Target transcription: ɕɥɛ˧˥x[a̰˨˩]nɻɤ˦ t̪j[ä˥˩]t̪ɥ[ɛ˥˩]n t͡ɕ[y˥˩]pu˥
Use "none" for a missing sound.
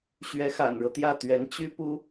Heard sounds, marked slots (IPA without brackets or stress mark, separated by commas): a̰˨˩, ä˥˩, ɛ˧˥, y˥